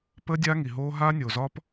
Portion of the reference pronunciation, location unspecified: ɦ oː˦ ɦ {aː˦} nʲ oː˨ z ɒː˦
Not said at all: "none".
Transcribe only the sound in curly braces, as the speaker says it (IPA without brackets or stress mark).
aː˦